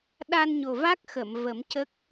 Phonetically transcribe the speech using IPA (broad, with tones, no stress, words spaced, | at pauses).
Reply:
ɗa˧nɲo˨˩ va˦˥k̚ xə˨˩˨mvə˨˩˦mcə˦˥k̚